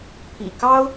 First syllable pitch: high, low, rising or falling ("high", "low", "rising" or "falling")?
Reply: low